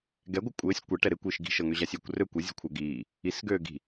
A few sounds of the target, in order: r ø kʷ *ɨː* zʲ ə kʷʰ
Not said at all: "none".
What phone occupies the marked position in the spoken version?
ɨ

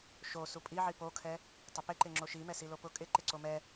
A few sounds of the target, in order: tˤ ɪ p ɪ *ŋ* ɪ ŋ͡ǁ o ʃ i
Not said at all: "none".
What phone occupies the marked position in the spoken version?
ǃ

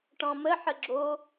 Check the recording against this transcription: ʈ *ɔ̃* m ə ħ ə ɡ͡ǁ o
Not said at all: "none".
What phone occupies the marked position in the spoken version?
ɔ̃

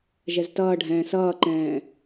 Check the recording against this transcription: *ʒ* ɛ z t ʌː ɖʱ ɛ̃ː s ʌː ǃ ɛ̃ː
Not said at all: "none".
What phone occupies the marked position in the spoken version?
ʒ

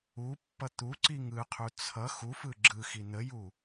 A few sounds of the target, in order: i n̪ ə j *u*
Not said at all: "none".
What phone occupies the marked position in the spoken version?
u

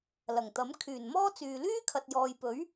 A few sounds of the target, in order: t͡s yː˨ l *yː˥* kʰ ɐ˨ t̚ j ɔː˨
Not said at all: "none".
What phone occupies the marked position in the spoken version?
yː˥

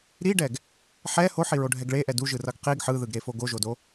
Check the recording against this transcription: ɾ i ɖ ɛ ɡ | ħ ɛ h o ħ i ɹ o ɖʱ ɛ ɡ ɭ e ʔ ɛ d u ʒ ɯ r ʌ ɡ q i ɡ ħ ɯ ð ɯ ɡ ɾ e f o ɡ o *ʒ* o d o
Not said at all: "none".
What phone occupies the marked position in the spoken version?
ʒ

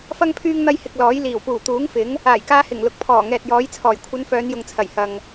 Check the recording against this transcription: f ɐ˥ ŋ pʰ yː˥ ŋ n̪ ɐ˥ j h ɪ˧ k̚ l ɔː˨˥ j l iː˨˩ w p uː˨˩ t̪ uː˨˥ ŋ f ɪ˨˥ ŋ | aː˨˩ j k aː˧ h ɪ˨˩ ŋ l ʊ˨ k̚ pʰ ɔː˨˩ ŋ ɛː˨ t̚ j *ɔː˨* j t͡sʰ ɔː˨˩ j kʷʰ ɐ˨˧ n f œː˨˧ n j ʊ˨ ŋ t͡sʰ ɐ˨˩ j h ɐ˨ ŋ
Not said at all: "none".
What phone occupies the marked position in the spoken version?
ɔː˨˥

